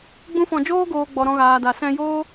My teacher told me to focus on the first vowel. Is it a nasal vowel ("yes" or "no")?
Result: yes